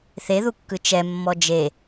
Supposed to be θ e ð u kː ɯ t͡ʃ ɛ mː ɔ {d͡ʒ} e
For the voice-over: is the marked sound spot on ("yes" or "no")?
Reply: yes